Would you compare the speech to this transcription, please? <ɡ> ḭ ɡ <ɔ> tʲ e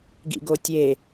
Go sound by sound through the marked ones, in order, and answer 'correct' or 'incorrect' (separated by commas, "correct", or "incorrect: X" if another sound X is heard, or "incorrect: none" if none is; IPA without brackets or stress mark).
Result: correct, incorrect: o